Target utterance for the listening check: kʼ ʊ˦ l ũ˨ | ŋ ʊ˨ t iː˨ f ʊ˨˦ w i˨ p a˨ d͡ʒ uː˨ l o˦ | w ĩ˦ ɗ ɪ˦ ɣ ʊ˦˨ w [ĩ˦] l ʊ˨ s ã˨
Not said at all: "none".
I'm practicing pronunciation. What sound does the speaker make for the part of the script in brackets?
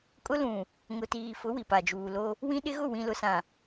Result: ĩ˨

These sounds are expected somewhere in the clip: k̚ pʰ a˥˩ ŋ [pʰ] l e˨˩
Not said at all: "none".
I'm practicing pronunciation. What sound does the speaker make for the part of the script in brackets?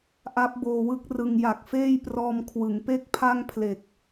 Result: pʰ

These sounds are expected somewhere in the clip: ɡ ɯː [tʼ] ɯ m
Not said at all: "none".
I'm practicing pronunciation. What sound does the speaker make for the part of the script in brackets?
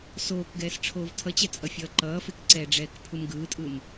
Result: tʼ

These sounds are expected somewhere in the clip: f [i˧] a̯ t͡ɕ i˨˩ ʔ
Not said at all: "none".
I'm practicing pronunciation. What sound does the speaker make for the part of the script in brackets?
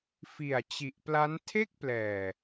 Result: i˨˩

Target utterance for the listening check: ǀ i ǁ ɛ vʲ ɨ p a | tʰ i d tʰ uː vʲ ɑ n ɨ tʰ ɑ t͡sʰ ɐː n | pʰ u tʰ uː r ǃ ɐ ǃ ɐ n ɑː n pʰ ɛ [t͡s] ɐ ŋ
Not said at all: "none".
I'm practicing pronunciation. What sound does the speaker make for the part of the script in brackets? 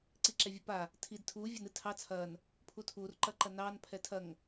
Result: tʰ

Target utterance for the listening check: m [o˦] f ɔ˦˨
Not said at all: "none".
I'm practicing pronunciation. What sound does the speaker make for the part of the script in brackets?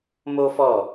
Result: o˦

